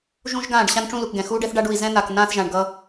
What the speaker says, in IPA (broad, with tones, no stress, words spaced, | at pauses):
ʒũ˦ʒɡãː˦˨ɖ ɕã˦nʈ͡ʂũ˦lu˨kɡɛ̃˨ xuː˦ɖɛ˦θɖa˦ɖ u˨i̯zɛ̃˦n̪a˨k nãː˦θʒã˨ɳɡʌː˦